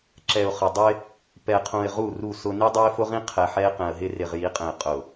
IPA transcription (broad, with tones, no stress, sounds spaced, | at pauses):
ǁ ɛ˨ ʊ̯ χ ə˨ dˤ ɪ˦ | p ɛ˨ qʰ ũ˨ ɪ̯ ʁ u˦˨ r u˦˨ s ʊ˦ n i˦ dˤ ɛ˦ ɪ̯ f ʊ˦ ʁ ĩ˦ qʰ ɛ˨ ħ ɛ˦ ɪ̯ q ɛ̃˨ ə̯ ɦ ɪ˦ r ɪ˨ ʁ j i˨˦ qʼ ɛ̃˨ ɪ̯ qʼ ʊ˨